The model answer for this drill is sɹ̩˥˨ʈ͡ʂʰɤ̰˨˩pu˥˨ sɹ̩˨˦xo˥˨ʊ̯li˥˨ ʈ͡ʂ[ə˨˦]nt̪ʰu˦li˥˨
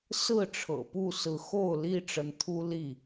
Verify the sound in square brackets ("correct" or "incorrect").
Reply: correct